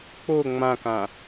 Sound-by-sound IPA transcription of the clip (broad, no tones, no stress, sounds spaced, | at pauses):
k͡p o ŋ͡m ã k ã